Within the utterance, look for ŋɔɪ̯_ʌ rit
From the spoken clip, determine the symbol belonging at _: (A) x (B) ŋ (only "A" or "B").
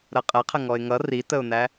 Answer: B